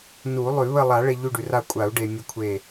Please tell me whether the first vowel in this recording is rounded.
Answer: yes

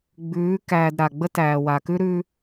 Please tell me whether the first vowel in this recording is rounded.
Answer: yes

